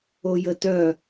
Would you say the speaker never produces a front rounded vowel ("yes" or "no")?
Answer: no